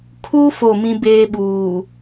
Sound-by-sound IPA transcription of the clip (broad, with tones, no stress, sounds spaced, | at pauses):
kʰ u˦ f o˦˨ m ĩ˦ b eː˦ ɓ uː˨